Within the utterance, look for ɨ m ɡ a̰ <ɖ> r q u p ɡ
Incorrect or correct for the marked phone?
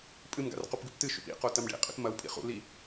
incorrect: none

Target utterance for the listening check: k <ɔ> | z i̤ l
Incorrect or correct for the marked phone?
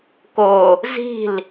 incorrect: o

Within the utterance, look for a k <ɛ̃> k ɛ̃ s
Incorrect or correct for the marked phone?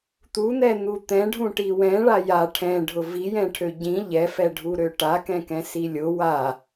correct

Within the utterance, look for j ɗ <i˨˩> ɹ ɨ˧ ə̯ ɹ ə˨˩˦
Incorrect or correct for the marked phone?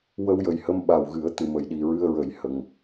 correct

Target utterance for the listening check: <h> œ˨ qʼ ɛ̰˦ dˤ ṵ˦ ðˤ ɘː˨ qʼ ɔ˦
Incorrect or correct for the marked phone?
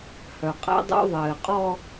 correct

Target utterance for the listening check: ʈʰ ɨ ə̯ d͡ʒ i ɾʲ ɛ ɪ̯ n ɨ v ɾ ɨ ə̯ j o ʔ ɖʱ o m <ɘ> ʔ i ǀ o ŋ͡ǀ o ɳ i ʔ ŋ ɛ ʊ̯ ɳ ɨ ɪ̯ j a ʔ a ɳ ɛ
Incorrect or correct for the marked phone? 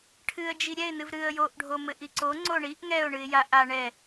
correct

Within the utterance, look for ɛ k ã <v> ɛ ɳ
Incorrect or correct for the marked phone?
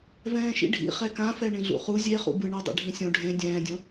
incorrect: f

